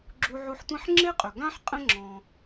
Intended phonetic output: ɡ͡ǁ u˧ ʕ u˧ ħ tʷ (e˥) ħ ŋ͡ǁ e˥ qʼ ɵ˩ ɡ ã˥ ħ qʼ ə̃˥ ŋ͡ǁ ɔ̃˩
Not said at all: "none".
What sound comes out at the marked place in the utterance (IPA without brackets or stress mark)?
ẽ˥